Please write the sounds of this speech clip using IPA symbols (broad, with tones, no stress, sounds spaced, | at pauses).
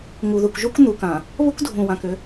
ŋ u˨ ð u˨ k ʒ u˦ k n̪ u˨ k ã˨ | β ʊ˦ k dʱ ũ˨ w ã˨ k ʏ˦